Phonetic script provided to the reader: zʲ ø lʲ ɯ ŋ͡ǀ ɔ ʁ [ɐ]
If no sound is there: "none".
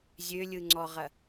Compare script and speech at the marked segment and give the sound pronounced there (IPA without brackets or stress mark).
ɐ